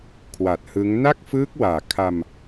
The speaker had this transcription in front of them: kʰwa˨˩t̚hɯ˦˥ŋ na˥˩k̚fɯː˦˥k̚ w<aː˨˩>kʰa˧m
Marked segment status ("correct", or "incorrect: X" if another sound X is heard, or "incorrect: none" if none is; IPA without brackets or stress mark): correct